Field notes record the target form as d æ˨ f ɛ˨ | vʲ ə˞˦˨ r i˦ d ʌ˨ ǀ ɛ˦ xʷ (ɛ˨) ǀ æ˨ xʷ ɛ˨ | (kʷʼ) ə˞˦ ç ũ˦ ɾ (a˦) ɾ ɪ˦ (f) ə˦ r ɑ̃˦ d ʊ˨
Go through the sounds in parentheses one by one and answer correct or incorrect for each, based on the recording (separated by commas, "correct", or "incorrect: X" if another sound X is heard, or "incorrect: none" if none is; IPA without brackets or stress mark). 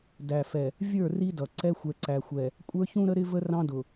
correct, correct, incorrect: ə˦, incorrect: v